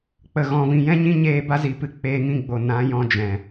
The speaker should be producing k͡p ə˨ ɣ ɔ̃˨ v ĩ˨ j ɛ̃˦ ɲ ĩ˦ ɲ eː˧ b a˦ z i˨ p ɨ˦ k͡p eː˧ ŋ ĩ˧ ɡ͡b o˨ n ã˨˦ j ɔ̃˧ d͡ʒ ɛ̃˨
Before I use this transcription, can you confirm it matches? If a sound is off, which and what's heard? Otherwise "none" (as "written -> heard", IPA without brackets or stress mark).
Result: none